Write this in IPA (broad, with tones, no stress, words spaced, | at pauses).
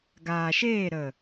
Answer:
ɡaː˨ʃeː˦˨ ɾə˨